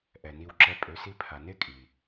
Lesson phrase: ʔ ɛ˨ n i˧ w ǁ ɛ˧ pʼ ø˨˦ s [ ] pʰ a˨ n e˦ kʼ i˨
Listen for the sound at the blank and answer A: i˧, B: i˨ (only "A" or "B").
A